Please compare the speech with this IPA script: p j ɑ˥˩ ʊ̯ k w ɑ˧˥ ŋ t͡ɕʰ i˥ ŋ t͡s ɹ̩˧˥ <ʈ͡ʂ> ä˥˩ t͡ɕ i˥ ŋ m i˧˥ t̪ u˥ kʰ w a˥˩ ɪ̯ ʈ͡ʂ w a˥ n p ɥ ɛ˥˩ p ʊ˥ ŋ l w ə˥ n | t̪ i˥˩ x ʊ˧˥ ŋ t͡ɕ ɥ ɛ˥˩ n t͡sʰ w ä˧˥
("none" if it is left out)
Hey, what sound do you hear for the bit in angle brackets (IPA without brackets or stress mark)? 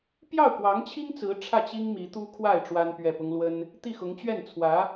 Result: ʈ͡ʂʰ